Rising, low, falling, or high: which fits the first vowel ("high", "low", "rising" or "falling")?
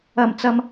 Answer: low